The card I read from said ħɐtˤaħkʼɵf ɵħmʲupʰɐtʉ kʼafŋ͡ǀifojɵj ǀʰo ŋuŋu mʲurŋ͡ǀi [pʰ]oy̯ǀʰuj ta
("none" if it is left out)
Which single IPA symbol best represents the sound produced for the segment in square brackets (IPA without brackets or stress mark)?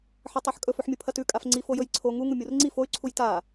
f